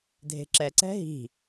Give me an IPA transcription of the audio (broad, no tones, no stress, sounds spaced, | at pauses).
dʱ e̤ ǁ ɛ ǀ ɛ̤ ɦ i̤